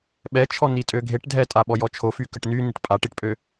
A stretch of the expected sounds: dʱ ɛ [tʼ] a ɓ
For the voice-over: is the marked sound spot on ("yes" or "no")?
yes